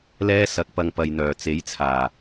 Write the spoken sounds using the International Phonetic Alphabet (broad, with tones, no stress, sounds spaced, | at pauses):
l ɛː˥ s ɐ˨˥ k̚ p ɐ˧ ŋ p ɐ˨ j n̪ œː˨˩ t͡s e˨˥ j t͡sʰ aː˨˩